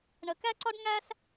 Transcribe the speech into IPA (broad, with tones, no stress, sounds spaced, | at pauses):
ɳ ə˩ k æ˥ ǀ ɒ˥ ɖ ŋ æ˥ s